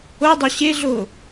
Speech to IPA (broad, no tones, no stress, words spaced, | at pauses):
odˤo ɕeɮo